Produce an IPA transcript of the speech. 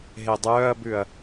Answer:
ɦ e dˤ œː ɐ̯ b ʉ ɐ̯

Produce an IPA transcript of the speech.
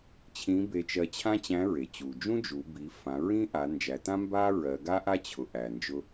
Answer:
t͡ɕʰ ĩ˧˥ b e˧ t͡ʃ ɜ˧ t͡ɕʰ ã˥ t͡ɕ æ̃˧˥ ɹ e˩ t͡ɕ u˩ d͡ʒ ũ˥ d͡ʒ u˩˧ b i˩˧ f ã˩˧ ɹ ĩ˥ ʔ a˩˧ n d͡ʒ æ˩˧ t ã˥ m b a˥ ɹ ɜ˩˧ ɡ a˥ ʔ a˥ t͡ɕʰ ʊ˩ ʔ æ˩ n d͡ʒ ʊ˧

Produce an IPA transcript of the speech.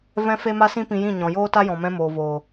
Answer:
v ɛ̃˦ f e˦ m a˦ s ĩ˦ p ĩ˧ j ĩ˦˨ ɲ ɔ̃˨ j oː˦ t a˦ j ɔ̃˨ m ɛ̃˧ m oː˨ v oː˨

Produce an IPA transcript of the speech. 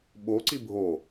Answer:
ɓ o ǀ i bʱ o

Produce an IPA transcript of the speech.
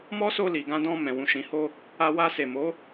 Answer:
m ɔ˦ s o˧ l i˨ ɡ ã˧ d ɔ̃˧ m ɛ̃˨ w ũ˨ ʃ ĩ˨ h o˧ | a˧ w a˧ s e˨ m o˨˦

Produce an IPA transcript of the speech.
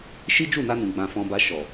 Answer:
ʃ i˦ d͡ʒ u˦˨ n a˧ n ũ˨ ɡ͡b ã˧ f ɔ̃˧ b a˧ ʃ ɔ˨

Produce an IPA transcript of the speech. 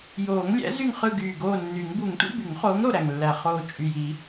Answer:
j oː˨˩˦ ŋ lʲ æ̰˨˥ z y˦˨ ŋ χ ɯ˦˨ ɡ yː˨˩ ɡ oː˦˨ nː y˨˩˦ ŋ b u˨˩˦ ŋ tʷ ḭ˧˥˧ b y˨˩˦ ŋ χ oː˨˥ ŋ ɾ o˨˩ ɾ æ˨˩ ŋ lː æ˨˩ χ oː˨˩ t͡ʃʼ y˨˩ j i˨˩˦

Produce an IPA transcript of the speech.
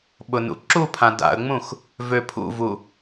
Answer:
ɓ ʊ n ṵ ǁ u pʰ ã d a̰ ə̯ ŋ͡m ũ x | v ø pʰ ṵ v u

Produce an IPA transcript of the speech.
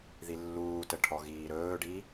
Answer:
ð i lː uː t ə ʈʰ ɔ ɣ iː ɾ ɵː ɖ i

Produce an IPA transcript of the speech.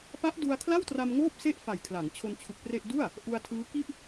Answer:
p a˦˥ ʔ d u˧ a̯ kʰ l a˥˩ w t r a˧ m ŋ oː˥˩ p̚ s e˥˩ ʔ f a˨˩ j kʰ l a˩˦ ŋ t͡ɕʰ o˧ n t͡ɕʰ u˨˩ k̚ p r e˥˩ ʔ d u˥˩ a̯ | ʔ u˧ a̯ tʰ ɯː˦˥ k i˥˩ ʔ

